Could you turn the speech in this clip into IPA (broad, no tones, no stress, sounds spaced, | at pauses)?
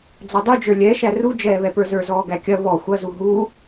d͡z ɔ dˤ u d͡ʒ ə˞ lʲ ɛ ʃ æ r u d͡ʒ ɛː β ɛ p ə˞ z ə˞ z ɔː ɡ æ kʲ ɐ β ɔ xʷ ɐ z u ɦ uː